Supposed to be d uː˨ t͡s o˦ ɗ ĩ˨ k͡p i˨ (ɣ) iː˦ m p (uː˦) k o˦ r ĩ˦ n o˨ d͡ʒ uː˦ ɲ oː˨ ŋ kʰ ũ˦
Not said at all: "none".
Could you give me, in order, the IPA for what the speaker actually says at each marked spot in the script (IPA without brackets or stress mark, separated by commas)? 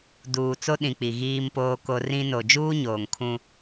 ɣ, oː˦